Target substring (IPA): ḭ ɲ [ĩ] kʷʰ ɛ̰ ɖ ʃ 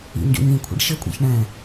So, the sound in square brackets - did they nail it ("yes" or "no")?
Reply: yes